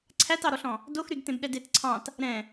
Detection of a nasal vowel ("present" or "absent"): present